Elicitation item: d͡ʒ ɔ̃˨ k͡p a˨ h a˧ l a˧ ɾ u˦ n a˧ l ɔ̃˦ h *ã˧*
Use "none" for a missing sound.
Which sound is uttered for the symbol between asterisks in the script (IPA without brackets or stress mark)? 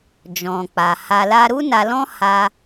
a˧